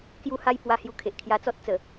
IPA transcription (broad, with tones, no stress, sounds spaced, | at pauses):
k j u˦ h a˦ j p w a˧ h j u˧ kʰ e˨ ʔ kʰ j a˧ t͡s ɔ˦ t̚ t͡s ə˨˩